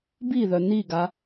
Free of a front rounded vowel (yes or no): no